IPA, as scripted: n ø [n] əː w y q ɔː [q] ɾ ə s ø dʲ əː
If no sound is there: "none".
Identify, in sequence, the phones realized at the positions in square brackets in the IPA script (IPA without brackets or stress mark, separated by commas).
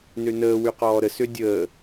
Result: n, none